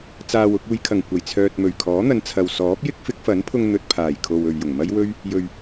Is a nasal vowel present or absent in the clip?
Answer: absent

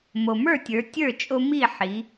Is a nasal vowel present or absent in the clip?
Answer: absent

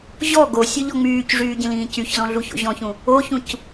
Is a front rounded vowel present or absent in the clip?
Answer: present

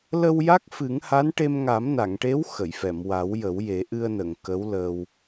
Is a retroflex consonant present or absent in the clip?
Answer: present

